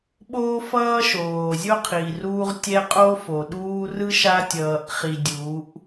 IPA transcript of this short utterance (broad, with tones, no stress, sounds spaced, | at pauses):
ɓ oː˦ f ʌː˦ ʃ oː˨ zʲ o˦ qʰ i˨ r uː˦ ʁ tʲ ɛ˦ qʼ o˦ f o˨ ɗ uː˦ r ɯ˦ ʃ a˦ tʲ ʌː˨ ʔ χ i˨ dʲ uː˨˦ ʔ